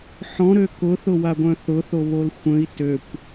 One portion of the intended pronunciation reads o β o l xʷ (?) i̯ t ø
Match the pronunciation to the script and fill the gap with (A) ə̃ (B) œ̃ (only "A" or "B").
A